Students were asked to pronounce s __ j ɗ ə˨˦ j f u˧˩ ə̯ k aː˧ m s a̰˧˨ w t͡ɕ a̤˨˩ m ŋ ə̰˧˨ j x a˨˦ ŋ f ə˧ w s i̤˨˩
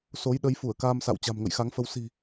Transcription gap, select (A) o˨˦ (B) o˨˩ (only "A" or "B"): A